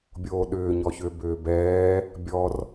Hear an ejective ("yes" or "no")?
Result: no